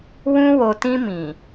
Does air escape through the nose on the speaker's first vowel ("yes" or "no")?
yes